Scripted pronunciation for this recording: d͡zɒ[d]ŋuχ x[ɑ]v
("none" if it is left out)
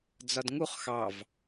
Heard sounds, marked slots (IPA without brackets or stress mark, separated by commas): d, ɑ